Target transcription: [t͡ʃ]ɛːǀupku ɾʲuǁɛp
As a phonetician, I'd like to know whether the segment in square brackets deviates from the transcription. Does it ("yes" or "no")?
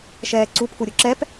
yes